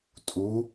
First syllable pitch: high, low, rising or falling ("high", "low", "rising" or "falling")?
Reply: rising